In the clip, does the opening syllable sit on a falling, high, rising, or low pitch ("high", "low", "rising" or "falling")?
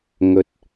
low